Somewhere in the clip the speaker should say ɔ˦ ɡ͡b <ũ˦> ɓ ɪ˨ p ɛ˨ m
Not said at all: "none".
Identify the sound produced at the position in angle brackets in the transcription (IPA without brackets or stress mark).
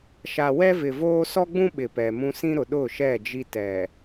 ũ˦